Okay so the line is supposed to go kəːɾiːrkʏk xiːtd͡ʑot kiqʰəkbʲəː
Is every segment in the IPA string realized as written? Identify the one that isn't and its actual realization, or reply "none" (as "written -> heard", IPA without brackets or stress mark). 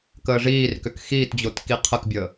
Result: ɾ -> ʐ